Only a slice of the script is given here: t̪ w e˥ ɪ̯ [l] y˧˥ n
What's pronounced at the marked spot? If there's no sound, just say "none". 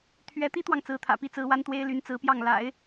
l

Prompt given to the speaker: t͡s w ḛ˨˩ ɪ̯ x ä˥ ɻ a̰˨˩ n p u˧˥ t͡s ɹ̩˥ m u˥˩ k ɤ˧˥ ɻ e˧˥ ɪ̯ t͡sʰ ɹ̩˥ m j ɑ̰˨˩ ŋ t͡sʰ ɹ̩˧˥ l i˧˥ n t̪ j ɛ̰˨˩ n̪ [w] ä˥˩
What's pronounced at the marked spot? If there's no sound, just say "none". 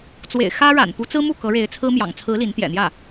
j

